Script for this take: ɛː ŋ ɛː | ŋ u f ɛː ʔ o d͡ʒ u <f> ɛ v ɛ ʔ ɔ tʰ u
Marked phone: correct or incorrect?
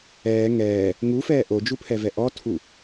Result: incorrect